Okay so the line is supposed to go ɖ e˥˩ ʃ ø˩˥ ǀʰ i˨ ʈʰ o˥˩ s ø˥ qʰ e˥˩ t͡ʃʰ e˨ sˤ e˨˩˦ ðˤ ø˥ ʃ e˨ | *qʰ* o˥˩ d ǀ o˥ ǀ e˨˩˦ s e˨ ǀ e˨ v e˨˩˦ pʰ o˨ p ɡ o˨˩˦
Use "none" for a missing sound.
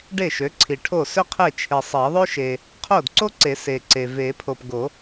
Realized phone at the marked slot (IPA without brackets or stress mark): qʰ